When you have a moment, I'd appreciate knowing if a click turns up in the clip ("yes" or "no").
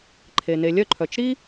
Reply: yes